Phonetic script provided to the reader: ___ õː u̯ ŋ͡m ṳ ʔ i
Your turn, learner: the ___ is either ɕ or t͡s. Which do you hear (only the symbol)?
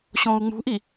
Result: ɕ